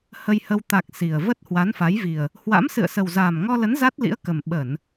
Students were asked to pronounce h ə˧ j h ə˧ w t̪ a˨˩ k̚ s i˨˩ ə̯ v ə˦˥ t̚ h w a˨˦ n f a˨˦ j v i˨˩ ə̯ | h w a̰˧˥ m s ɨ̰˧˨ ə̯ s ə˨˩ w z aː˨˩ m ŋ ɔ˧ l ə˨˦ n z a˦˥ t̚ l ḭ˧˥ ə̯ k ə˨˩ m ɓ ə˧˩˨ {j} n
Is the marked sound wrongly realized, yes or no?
yes